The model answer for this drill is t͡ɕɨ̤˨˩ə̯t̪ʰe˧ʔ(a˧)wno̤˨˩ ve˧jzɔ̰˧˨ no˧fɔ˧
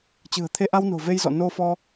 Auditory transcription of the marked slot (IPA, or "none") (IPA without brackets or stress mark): a˧